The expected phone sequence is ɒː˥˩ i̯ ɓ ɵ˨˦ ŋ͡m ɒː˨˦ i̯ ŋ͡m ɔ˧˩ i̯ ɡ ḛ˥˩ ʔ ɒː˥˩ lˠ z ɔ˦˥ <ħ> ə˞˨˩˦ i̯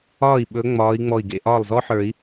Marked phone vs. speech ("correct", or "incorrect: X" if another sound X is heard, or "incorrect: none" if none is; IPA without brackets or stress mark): correct